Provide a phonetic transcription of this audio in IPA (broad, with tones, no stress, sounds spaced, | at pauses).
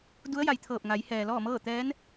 d u˧˥ ə̯ j a˩ j t̪ʰ ɤː˧˩ p̚ ŋ a˩˧ j h ɛː˩ l ɔː˥˨ m ɤː˥˨ t̪ ɛː˧˥ n